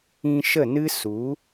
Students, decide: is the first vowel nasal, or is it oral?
nasal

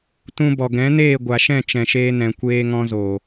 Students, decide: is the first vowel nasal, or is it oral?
nasal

